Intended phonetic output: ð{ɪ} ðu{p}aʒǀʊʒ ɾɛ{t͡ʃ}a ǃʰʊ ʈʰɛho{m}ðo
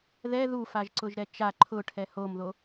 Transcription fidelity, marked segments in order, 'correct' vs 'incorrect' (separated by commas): incorrect, incorrect, correct, correct